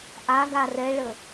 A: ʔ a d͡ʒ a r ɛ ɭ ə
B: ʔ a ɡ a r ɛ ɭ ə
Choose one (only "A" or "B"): B